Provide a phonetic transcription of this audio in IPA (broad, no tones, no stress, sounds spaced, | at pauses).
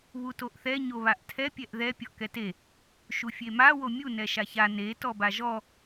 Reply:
β u t o ʔ θ ɛ ɲ o β a ʔ tʰ ɛ pʲ ɛ ʔ ð ɛ pʲ ɔ ʔ k ɛ t e | ʃ u fʲ e m a w o mʲ u n ɛ ʃ a ç a n e t ɔ b a ʒ ɔ